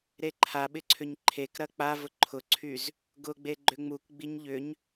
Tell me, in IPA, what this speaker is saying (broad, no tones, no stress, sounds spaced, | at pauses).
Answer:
ɾ e ǃʰ a ɓ ɪ ǀʰ ʏ ɲ ǃʰ e k ɾ ɐ k͡p a v ʊ ǃʰ ʊ ǀʰ y z | ɡ ʊ ɡ͡b e ɡ͡ǃ ʏ ŋ͡m u k ɡ͡b i ɲ ʎ ʏ ɲ